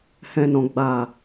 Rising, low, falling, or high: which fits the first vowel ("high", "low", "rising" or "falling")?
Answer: low